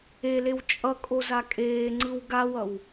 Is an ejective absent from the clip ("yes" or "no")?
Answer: no